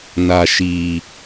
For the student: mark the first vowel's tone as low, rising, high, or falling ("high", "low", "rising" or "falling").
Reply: low